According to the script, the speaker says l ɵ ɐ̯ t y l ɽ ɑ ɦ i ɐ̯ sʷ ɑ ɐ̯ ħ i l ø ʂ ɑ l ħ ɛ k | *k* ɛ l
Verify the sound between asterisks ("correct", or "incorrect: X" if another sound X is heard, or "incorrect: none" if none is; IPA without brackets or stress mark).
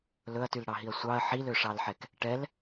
incorrect: ʈ